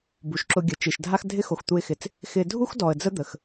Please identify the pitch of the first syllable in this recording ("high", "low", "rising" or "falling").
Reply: low